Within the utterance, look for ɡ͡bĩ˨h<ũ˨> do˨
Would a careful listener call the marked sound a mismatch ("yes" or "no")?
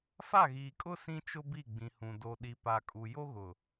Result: no